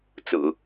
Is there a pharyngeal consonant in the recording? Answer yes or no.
no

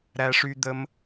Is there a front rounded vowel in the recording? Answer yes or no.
yes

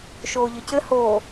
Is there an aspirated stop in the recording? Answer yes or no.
no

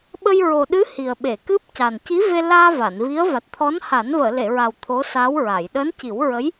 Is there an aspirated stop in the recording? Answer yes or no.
yes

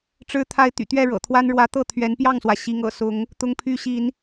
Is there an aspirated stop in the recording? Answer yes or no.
yes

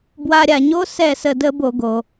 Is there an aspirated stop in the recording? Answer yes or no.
no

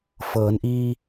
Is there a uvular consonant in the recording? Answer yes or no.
no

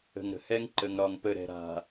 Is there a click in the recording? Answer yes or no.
yes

